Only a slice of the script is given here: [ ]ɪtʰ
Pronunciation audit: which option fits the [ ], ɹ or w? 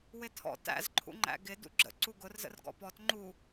w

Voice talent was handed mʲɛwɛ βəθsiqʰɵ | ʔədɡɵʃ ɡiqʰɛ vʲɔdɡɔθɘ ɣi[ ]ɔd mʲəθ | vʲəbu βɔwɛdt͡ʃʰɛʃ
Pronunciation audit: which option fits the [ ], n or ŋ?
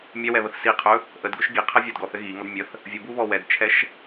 ŋ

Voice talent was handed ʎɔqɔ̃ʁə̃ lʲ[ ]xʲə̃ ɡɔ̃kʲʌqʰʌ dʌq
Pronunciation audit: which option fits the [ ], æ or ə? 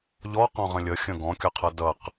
ə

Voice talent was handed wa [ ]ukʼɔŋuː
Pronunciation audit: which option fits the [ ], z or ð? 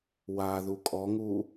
ð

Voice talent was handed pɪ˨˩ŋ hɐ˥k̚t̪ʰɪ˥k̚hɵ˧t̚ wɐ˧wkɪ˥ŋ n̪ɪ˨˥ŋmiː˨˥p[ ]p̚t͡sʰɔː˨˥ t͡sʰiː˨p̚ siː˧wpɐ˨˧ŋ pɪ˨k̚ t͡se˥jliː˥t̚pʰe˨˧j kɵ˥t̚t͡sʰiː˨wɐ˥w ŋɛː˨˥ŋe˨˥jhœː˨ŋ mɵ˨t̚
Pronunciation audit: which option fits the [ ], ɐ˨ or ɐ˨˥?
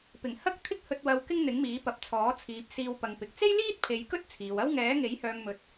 ɐ˨˥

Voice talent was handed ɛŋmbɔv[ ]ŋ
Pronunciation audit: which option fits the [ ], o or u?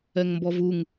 u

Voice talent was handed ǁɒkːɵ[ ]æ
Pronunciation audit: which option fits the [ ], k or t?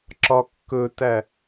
t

